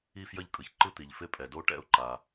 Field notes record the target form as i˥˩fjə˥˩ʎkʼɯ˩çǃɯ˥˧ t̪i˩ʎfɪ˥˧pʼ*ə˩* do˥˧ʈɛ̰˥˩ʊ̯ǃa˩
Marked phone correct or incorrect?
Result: incorrect